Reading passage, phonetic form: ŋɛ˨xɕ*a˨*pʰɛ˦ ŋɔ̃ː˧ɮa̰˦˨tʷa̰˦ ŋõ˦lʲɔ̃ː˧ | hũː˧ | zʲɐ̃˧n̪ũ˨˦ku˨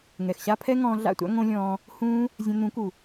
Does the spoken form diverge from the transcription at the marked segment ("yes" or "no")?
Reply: yes